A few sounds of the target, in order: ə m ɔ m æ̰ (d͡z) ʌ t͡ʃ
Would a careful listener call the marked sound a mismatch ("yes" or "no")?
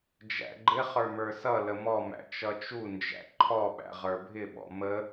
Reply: yes